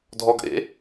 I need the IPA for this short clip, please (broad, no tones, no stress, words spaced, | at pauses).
dʱɔɡʔḛ